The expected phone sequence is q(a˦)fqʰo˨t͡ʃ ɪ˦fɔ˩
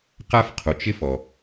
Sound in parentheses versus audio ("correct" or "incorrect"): correct